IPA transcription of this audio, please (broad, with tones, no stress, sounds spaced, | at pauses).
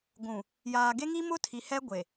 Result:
ɡʷ ũ˨ | j aː˨ ɡ e˦ ŋ i˦ m ʊ˦ tʰ i˨ h ɛ˦ ɡʷ e˨